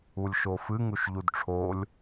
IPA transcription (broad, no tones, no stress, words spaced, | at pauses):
ulʲʃofɨ ŋuʃʎudʈ͡ʂʰolʲ